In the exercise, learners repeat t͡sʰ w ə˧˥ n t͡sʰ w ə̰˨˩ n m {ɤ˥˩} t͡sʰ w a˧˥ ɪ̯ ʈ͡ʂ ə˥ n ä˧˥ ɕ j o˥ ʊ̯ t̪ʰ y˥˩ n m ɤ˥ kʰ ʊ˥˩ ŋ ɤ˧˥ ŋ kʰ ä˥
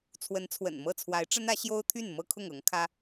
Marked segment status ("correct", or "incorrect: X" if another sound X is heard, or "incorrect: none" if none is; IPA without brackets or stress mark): correct